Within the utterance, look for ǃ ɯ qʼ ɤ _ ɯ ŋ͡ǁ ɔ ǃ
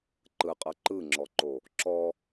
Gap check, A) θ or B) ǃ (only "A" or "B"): B